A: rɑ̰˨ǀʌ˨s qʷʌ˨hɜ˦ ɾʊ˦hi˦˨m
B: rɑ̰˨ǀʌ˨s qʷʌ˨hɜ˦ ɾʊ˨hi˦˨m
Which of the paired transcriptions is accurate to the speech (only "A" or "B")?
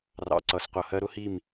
A